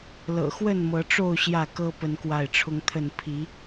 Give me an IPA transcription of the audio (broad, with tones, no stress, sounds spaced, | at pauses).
l ɤ̰˨˩ x w ə˥˨ n m ɤ˨˦ ʈ͡ʂ o˥˨ ʊ̯ ɕ j ä˥˨ k ɤ˦ p ə˦ n k w a˥˨ ɪ̯ ʈ͡ʂʰ ʊ˦ ŋ t̪ʰ ə˥˨ n pʰ i˨˦